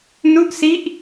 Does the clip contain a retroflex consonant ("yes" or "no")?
no